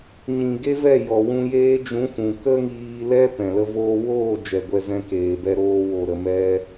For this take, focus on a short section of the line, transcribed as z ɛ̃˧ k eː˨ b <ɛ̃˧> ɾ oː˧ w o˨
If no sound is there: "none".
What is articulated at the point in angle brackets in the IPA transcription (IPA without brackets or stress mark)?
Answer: ɛ˧